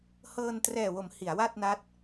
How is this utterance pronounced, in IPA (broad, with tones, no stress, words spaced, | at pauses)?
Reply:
hɤː˧ntrɛː˨˩wo˩˦m hi˩˦a̯wa˥˩t̚na˦˥t̚